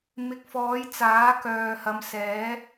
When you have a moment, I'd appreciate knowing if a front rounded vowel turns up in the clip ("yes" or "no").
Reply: yes